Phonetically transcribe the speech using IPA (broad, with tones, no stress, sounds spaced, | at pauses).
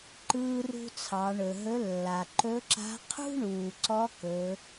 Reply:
ǃ ɯː˧ r ṳ˧ t͡sʰ ɑ˩˧ ɳ ɵ˩ ɦ ɵ˧˥ lː a˩ ǃ ɵ˧˥ ǁ a̤˧˥ qʰ ṳ˥ ɳ uː˩ ǀ ɔ˧˥ k ɵ˩˧